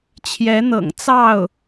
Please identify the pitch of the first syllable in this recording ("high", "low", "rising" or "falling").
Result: rising